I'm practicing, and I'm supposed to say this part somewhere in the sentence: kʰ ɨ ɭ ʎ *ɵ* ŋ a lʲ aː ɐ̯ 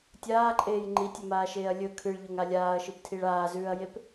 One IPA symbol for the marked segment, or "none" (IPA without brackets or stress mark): o